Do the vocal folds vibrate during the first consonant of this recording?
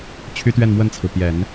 no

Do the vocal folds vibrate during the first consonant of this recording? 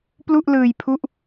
no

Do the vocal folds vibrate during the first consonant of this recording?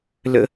yes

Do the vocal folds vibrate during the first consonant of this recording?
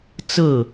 no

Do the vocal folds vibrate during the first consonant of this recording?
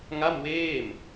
yes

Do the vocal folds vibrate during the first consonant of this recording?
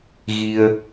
yes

